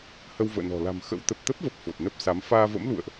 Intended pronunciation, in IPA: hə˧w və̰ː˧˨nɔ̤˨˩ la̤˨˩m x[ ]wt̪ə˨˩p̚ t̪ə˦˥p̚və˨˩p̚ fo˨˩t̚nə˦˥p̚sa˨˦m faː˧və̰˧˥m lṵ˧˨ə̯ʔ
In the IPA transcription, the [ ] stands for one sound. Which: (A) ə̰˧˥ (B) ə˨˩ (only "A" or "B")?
A